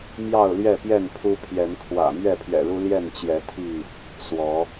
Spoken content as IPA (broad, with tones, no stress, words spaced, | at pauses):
mjɑ˥˨ʊ̯lɥɛ˥˨pjɛ˥˨n pʰu˦pʰjɛ˨˦n kʰwä̰˨˩ mɥɛ˥˨pʰɥɛ̰˨˩ɻu˦ ljɛ˥˨nt͡ɕjɛ˨˦ t̪ʰi˥˨ | swɔ˨˦